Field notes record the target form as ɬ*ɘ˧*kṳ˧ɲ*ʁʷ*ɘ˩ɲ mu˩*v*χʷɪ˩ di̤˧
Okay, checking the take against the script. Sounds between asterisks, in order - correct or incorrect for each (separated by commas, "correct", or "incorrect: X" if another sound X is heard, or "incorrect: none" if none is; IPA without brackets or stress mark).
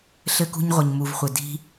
correct, correct, correct